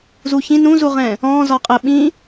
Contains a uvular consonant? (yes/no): yes